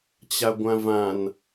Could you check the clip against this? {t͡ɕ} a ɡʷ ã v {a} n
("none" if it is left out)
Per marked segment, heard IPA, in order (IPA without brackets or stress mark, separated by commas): t͡ɕ, ã